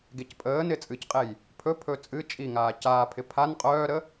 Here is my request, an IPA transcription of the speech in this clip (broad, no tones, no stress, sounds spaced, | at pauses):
ɡ e c pʼ əː n ɪ t͡sʼ ɨ c qʼ e j | pʰ ɵ pʰ ɵ t͡sʼ ɨ t͡ʃʼ i ŋ aː c aː pʰ ɪ pʰ a n qʼ œː ɾ ə